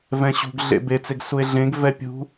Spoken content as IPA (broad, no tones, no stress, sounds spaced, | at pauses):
v ɛ̃ ɕ ṳ ɡ ɮ ḛ b e t͡s e ɡ s u e̯ ɮ ẽ ɡ v ɛ pʲ ṳ